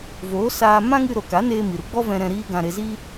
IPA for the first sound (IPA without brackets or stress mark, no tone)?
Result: v